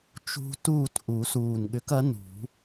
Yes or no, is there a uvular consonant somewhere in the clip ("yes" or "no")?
no